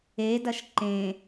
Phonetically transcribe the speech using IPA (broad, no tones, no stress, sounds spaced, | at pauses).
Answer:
e d ɐ ʃ ǃ ẽ